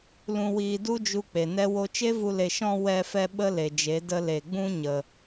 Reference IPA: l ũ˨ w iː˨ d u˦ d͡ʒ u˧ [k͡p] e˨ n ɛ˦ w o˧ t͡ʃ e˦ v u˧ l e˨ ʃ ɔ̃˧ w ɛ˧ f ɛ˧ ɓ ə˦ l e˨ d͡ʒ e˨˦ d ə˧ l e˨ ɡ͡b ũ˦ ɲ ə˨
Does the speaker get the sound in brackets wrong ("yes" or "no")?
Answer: no